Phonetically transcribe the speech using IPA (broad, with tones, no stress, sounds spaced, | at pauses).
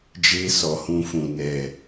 d͡ʒ e˦ s ɔ˨ h ũ˧ f ũ˨ n ɛ˨